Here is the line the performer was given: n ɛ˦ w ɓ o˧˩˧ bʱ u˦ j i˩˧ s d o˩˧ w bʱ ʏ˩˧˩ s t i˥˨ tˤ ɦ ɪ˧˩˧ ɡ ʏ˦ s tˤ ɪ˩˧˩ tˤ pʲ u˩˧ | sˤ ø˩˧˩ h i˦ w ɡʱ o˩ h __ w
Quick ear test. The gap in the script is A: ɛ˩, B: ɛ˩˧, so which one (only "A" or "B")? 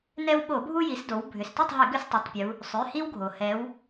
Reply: B